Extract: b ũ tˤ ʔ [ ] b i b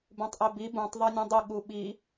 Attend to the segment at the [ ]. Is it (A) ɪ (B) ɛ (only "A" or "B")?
B